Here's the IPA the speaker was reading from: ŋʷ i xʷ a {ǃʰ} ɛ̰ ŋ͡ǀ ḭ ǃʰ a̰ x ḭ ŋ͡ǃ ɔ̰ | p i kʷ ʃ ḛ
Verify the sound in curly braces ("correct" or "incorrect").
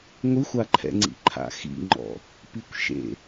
correct